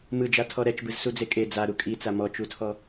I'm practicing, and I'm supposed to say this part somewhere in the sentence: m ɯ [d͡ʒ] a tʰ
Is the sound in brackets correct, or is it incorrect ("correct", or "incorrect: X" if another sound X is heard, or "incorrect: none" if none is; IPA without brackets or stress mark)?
correct